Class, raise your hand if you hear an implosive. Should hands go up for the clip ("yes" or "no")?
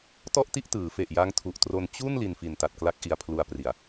no